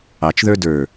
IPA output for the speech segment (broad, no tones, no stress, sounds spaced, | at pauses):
ɑ t͡ʃ ð ə˞ d ə˞